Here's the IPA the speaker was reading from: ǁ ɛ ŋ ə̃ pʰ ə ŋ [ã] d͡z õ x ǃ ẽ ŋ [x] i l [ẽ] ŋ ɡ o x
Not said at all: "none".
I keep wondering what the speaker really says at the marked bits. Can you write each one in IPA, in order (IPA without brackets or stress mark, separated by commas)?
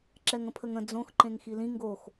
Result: ə̃, x, ĩ